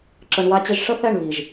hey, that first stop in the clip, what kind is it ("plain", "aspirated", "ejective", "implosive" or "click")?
click